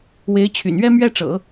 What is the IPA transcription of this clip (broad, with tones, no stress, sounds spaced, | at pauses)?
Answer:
w e˧˥ ɪ̯ t͡ɕʰ y̰˨˩ n ɥ ɛ˥ m ɥ ɛ˥ ʈ͡ʂ ɤ̰˨˩˦